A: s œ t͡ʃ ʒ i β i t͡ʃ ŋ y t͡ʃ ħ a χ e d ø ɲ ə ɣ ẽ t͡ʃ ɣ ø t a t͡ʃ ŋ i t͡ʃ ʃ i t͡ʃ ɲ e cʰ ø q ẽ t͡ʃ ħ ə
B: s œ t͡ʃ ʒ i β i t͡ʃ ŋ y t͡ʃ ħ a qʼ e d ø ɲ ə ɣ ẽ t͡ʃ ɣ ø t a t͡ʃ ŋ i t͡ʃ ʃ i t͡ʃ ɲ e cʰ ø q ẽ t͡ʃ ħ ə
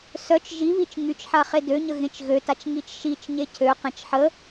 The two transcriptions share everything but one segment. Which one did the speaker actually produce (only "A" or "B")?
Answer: A